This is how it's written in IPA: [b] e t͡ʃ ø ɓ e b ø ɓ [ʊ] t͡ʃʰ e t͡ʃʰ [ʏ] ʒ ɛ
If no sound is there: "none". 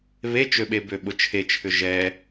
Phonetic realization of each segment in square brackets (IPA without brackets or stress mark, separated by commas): β, ʊ, ʏ